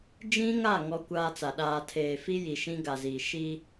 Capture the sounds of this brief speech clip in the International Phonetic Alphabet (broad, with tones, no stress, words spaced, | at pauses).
d͡ʒĩ˦ŋa˦˨ ŋɔ˦kʷaː˦t͡sa˨ ɗaː˨tʰeː˨fi˦ ji˨ʃĩ˦ɡa˨ziː˨ ʃi˦